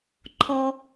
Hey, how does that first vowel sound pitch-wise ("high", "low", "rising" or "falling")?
low